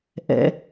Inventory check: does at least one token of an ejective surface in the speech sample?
no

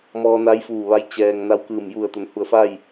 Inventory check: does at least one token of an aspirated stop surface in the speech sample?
no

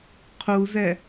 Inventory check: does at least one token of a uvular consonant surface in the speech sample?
yes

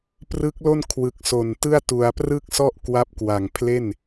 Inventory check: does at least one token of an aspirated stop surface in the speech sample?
yes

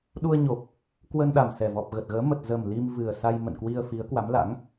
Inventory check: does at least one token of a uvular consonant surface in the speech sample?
no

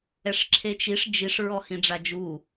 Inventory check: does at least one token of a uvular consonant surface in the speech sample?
no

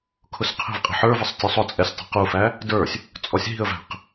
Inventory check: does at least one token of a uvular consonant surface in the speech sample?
yes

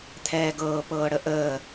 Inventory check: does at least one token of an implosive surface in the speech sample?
no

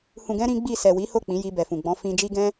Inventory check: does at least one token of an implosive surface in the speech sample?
no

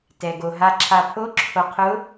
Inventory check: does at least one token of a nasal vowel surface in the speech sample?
no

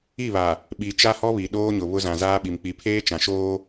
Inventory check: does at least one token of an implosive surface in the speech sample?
yes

